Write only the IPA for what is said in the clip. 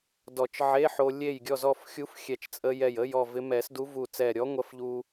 d ɔ˨˩˦ t͡ʃ ʕ e˧˥˧ ħ o˧ lʲ e˥˨ j ɡʲ ɔ˥˨ z ɔ˥˨ f xʲ u˧˥ f xʲ ɛ˧˩ t͡ʃ t͡sʼ ə˧ j ɛ˧˩ j ə˧˥˧ j ɔ˥˨ v ɪ˧˥ m ɛ˨˩˦ s d u˧˥ v u˧˩ t͡s ɛ˧˩ ɾʲ ɔ˧˥ ŋʷ ɐ˧˥ f ʎ u˧

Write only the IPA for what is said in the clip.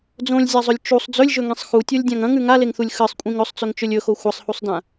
d͡z õ lʲ zʲ a zˤ ɵ lʲ t͡ʃ u sˤ d͡z ɵ lʲ ʒ ɵ ŋ ĩ sˤ x u tʲ o lʲ dʲ ã ŋ ɐ̃ ŋ ʉ ŋ a l e ŋ θ u lʲ x ɨ sˤ kʷʼ ĩ ŋ ɵ sˤ t͡s ɵ ŋ t͡ʃ ɵ lʲ ɵ x o xʷ ɐ sˤ h u sˤ d ã

